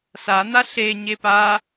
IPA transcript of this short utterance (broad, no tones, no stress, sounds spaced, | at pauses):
s a n̪ a ɬ e ɲ e p a